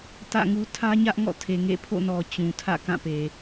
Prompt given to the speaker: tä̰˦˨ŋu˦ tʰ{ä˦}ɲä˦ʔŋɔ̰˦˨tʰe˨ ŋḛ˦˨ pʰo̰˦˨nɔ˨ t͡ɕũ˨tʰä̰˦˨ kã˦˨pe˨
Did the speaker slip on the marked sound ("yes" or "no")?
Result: no